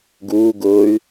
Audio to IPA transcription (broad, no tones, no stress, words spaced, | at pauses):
ɡuː ɡʊːy̯